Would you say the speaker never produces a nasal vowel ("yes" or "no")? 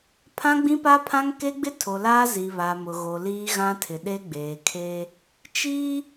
no